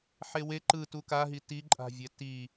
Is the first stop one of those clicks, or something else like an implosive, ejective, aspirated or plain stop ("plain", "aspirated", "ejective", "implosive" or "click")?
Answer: click